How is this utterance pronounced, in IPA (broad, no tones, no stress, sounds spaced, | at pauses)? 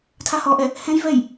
tʰ a h ɔ ʔ ɛ | h ɛ̃ j v ɛ j